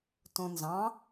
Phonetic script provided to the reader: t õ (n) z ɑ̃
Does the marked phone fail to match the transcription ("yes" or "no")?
no